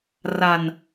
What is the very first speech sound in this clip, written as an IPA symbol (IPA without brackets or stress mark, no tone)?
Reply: r